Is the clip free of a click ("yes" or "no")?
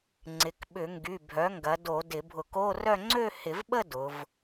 no